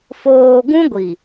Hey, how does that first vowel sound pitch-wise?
low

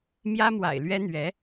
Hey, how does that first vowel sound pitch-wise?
high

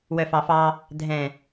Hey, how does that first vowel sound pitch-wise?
low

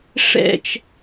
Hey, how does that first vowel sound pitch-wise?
falling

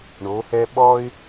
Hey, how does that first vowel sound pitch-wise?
rising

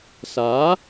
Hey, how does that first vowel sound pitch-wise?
rising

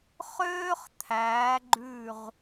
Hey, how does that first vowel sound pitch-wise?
high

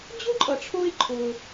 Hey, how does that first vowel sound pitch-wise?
high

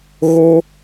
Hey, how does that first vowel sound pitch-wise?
high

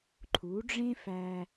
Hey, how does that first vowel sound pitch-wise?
rising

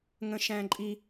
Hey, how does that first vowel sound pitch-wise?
high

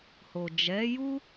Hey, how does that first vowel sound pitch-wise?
low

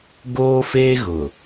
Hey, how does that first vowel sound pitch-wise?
high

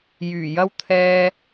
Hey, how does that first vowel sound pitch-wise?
low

